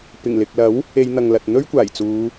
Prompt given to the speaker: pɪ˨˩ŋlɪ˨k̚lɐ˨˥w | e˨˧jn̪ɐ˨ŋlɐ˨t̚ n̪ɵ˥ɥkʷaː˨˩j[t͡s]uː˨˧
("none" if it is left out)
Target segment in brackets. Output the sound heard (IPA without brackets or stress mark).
t͡s